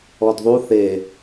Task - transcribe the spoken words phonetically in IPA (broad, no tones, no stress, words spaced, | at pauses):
ɔdðˤu θe